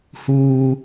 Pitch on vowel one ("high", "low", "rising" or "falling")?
high